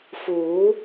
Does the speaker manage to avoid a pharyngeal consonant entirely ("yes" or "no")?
yes